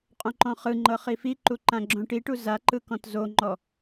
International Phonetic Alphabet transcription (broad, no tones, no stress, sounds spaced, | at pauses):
qʼ õ ǃ ɔ̃ χ ɯ ŋ͡ǃ ɤ χ i f i ǃ u ǃ ã ɡ͡ǁ õ ʈ i ʈ u z a ǃ ɯ k ɔ̃ t z o ŋ͡ǃ ɔ